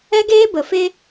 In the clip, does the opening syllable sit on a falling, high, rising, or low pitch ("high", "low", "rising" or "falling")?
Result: high